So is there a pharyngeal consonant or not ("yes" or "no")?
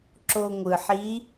yes